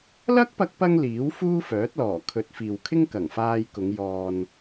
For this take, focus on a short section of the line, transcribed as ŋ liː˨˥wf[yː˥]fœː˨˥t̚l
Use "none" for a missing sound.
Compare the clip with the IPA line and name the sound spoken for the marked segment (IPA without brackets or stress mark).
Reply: uː˥